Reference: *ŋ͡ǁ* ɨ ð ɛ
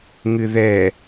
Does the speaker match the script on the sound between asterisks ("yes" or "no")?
no